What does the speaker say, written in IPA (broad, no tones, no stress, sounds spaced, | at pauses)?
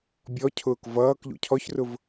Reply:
bʲ ɔ cʰ ʊː k v ʌː k ʎ ṵ cʰ ɔ ç r ʊ v